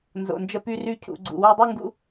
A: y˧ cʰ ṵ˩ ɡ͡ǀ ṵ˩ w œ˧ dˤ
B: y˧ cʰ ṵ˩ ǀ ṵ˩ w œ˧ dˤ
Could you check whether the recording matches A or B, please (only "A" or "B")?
A